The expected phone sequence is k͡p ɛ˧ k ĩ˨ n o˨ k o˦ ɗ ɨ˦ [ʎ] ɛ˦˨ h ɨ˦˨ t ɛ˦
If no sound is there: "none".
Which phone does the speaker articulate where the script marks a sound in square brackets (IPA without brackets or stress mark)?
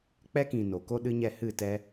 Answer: ɲ